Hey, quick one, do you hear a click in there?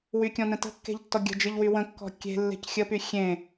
no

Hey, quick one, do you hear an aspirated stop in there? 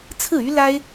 yes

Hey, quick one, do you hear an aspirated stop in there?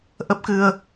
no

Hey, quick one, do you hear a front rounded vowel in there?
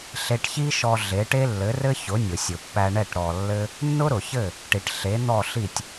no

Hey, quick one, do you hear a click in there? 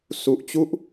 no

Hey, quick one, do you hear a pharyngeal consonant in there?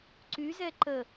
no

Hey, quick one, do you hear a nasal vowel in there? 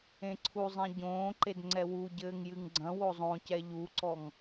yes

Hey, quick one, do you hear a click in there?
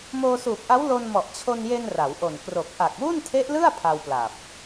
no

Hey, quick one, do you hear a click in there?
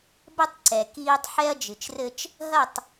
yes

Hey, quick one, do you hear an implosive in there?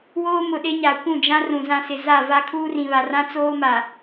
yes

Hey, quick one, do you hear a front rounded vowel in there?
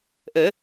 no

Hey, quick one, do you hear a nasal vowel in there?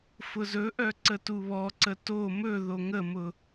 no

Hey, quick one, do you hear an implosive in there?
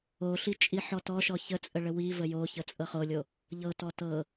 no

